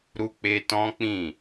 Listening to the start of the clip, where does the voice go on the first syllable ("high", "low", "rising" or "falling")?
high